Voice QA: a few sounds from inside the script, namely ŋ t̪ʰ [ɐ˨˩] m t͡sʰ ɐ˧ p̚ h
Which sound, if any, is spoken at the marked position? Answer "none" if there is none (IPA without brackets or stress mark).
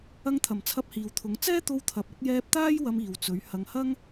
ɐ˨˩